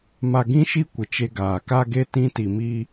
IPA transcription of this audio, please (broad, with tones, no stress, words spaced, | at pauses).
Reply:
ma˨ɡĩ˦ʃi˦ kʷɪ˨t͡ʃe˦ɡaː˨ ka˦ɡe˦ tĩ˦ti˨mi˦